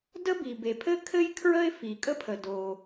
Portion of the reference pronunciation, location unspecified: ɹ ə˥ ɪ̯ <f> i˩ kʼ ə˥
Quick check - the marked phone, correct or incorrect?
correct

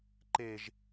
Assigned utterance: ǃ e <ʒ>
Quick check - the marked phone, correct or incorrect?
correct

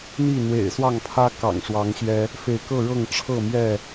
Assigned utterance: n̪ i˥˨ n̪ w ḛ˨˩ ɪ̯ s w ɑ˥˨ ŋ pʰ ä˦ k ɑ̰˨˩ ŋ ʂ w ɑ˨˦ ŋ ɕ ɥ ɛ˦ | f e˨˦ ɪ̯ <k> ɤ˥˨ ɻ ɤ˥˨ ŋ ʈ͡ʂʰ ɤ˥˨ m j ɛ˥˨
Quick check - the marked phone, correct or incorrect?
correct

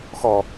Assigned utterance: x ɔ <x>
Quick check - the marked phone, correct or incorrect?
incorrect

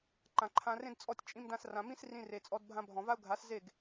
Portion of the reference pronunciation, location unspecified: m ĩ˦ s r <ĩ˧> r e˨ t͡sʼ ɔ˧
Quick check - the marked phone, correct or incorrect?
correct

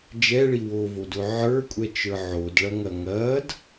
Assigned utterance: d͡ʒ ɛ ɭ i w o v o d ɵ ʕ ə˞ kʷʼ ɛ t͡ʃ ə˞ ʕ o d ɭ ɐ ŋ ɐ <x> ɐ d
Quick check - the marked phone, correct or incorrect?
incorrect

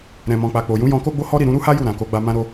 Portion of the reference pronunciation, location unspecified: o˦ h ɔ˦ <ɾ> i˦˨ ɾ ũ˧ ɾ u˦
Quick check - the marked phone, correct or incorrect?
correct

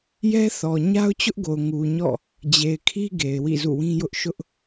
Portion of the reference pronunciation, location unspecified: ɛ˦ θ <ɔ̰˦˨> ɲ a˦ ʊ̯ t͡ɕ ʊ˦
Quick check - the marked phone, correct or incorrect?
incorrect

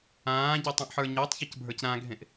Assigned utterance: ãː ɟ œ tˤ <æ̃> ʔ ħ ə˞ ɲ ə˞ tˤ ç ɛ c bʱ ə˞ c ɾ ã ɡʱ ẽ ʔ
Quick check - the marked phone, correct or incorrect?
incorrect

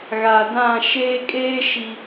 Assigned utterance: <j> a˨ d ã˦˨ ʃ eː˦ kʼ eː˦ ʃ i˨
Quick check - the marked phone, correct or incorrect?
incorrect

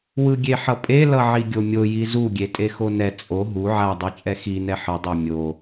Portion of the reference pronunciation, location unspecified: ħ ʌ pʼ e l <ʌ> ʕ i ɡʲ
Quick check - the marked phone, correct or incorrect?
correct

